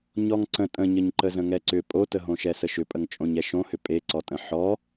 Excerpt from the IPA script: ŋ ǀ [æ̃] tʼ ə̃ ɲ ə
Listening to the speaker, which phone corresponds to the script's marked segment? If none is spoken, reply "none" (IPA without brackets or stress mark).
ə̃